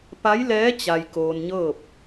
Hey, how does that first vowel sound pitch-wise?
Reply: rising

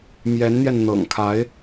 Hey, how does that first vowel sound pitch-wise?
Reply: rising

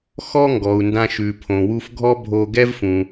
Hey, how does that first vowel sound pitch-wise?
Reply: high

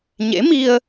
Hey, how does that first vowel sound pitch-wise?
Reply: rising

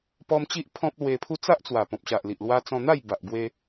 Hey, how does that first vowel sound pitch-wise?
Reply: high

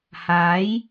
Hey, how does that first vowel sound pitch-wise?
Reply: rising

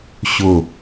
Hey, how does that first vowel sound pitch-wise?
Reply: falling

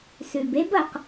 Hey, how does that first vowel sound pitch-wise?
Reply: low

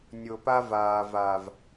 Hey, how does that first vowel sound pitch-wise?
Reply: low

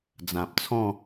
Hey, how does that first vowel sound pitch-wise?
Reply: low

